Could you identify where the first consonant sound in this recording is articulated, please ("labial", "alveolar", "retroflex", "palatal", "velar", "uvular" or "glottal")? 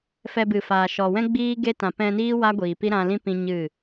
labial